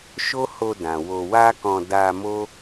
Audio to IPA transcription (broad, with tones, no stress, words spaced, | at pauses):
ʃo˦ho˧dã˨ wo˧ wa˦kɔ̃˧ da˧mo˦